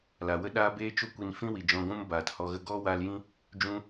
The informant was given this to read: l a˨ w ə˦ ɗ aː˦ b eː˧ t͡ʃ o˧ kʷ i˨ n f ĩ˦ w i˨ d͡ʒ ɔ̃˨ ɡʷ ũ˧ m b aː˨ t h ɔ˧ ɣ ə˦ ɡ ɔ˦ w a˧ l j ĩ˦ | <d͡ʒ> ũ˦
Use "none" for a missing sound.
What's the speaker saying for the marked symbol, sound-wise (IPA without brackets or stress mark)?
d͡ʒ